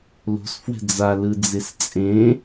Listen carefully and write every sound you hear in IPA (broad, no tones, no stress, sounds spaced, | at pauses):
l o̤ s f w ɛ̤ d͡z a l ɯ d͡z e s t͡sʼ ẽ